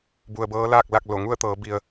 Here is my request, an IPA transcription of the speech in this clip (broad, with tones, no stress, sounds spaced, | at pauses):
b u˩ ə̯ b ɤː˧˥ l aː˥˨ k̚ l a˥˨ k̚ l o˧˩ ŋ u˥˨ ə̯ t̪ ɤː˩˧ b i˩ ə̯